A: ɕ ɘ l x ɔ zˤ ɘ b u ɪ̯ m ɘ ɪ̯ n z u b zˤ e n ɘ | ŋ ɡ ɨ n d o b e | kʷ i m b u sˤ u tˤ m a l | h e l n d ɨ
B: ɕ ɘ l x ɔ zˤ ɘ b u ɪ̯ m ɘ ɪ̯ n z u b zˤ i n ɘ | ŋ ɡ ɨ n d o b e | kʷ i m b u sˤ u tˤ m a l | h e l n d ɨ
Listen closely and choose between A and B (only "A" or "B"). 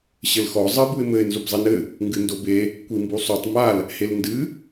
B